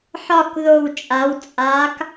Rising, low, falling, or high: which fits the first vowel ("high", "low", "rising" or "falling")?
falling